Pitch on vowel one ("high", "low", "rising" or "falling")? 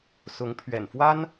rising